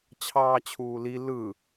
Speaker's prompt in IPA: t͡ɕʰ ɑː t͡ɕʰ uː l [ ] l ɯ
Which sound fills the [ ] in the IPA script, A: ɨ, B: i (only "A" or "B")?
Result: B